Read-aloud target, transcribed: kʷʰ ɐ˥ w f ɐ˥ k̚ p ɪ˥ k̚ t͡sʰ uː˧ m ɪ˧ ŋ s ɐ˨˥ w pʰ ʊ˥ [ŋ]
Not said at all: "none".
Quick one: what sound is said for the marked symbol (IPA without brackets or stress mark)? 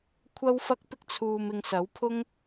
ŋ